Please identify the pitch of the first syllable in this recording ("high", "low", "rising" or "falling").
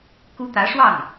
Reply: high